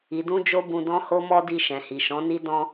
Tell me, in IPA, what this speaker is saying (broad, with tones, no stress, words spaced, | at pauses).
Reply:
i˨dũ˧ d͡ʒo˦bũ˧dɔ̃˦ ho˦mɔ˦di˧ ʃɛ̃˨hi˨ʃɔ̃˨˦ni˦ dɔ̃˧